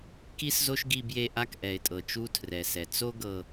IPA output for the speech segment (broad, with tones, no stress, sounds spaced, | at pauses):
k i˦ s z o˦ ʃ ɡ i˧ b j e˧ ʔ a˦ k ʔ ɛ˨ ɪ̯ tʼ ɤ˨ t͡ʃ u˦ tʰ r ɛ˨ s ɛ˨ t͡s o˦ ɡ ɤ˧